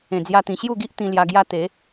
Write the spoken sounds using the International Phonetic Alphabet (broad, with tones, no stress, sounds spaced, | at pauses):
ẽ˨˩ d͡z j a˧ t̪ ĩ˨˩ ɕ j u˥˧ ɡ i˦ ʔ t̪ ĩ˧ l j a˧ ɡ j a˦ t̪ e˨˦